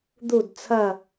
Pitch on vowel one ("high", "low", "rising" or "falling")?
falling